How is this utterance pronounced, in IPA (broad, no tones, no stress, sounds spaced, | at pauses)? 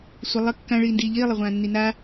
sʷ ə lˠ ə kː ã ɭ iː n d iː ʎ iː lˠ ə ʁʷ ãː nː i n a